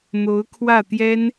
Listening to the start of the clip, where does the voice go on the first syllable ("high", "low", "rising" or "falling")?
rising